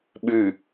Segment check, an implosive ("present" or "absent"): present